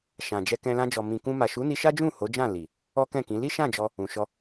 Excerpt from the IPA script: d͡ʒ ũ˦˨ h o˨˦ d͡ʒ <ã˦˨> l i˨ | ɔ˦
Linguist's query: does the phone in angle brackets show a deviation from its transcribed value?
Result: no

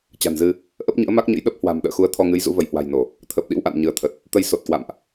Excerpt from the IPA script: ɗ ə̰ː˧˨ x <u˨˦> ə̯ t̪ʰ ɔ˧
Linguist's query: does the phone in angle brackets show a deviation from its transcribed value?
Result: no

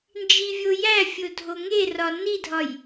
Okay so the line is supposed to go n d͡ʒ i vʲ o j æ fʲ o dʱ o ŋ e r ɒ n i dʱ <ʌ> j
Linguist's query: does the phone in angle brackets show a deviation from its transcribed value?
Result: yes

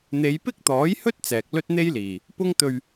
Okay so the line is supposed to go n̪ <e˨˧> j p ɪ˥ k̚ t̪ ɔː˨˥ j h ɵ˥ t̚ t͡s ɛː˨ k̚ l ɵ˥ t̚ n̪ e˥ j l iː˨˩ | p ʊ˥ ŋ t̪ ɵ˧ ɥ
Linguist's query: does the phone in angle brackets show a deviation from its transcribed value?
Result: no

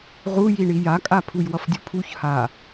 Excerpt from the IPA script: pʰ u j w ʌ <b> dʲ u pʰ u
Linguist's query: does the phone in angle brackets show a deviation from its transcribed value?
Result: yes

